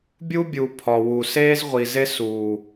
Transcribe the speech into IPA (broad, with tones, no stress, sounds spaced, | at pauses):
bʲ u˦ bʲ u˨ pʰ ɒ˨ w u˨ s eː˦ z ʁʷ i˨ z e˦ s uː˨